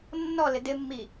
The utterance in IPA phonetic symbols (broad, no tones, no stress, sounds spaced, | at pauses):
nː ɔ l ɪ d ɪ mː i